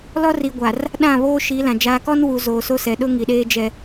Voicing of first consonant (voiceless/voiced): voiced